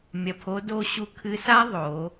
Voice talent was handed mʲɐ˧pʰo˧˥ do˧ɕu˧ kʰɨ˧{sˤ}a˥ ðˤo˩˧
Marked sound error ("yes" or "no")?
yes